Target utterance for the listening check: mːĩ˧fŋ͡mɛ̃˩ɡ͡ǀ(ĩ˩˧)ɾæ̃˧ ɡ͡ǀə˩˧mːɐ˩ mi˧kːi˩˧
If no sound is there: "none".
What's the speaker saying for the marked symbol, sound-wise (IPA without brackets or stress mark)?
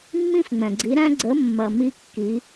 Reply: i˩˧